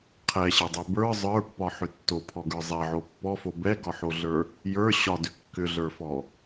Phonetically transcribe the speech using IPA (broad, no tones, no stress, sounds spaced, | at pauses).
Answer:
qʰ ɛ ɕ ɛ dˤ ɛ b ə˞ zˤ ə˞ pː ɒ ħ ʏ tː o pʰ ɔ ɡ ə˞ zˤ ɛ ʕ o pː ɔ f o b ɛ ɡ ɒ ħ o ɮ ə˞ | j ə˞ ɕ ɒ d ʏ kː ʏ ɮ ə˞ f ɔ